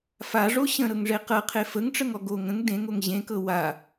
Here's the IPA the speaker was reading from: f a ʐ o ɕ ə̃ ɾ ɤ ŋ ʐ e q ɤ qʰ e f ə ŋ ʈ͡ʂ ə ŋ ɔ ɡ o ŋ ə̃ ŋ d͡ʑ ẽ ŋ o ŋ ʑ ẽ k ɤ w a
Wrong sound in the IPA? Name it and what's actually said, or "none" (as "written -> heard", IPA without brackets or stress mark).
d͡ʑ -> d